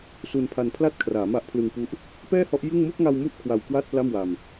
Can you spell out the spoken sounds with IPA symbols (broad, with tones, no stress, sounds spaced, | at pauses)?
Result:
s u˧ n pʰ a˧ n pʰ l a˥˩ t̚ kʰ r aː˩˦ m a˦˥ ʔ pʰ l ɯ˧ ŋ p u˦˥ ʔ | p ɛː˥˩ h ɔ˦˥ ʔ j ɯ˥˩ ŋ m uː˥˩ k̚ ŋ a˧ w m u˦˥ ʔ kʰ w a˧ w k w a˥˩ t̚ p l a˥˩ m w a˧ m